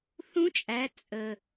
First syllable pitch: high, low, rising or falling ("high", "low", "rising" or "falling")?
rising